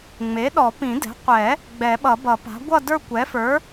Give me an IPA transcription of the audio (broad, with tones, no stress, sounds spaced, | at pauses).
ŋ͡m e˩˥ ɗ ɔ˨˩˦ p ĩ˨˩˦ d ɛ̤˩˥ qʷ ɛ˨˩˦ | ɡ͡b ɛ˨˩˦ ɓ ʌ˨˩˦ b ʌ˨˩˦ p a̤˩˥ ɡʷ ʌ˥˧ d ə˞˥˧ kʷ ɛ˩˥ f ə˞˩˥